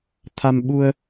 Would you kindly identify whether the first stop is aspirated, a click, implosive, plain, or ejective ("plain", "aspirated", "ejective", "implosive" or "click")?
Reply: aspirated